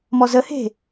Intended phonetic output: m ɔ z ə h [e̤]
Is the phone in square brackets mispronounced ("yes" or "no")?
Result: no